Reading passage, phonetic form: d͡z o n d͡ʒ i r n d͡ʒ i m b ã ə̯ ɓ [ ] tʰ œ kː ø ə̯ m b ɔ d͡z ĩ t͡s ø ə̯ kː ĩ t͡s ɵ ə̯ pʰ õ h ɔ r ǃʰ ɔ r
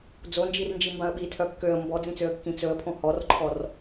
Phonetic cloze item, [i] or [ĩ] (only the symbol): i